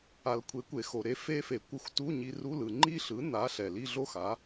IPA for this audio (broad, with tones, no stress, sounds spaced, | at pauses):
a˩ l kʷʰ e˩˥ kʷ e˩ x o˩ ɾ e˩˥ f e˧ f e˩ kʷ ɯ˧ xʷ t u˧˥˧ ɲ i˧ r u˧˥˧ l ɯ˩ ŋ͡ǃ i˥˧ ɬ ɯ˩˥ n a˩˥ ɬ ɛ˩ l i˥˧ ɮ o˥˧ x a˩˥